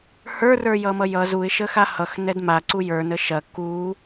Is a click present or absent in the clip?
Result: present